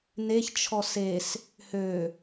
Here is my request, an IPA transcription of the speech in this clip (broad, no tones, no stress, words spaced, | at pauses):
neç t͡ʃʰɔses | hø